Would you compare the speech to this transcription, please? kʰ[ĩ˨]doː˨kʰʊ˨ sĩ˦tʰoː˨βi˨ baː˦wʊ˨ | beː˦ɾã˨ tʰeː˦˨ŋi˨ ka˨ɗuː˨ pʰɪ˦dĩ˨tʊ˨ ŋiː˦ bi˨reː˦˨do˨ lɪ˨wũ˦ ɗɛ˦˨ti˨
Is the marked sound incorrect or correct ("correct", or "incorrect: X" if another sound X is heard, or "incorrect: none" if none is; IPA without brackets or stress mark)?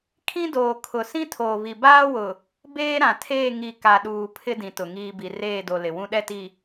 incorrect: ĩ˦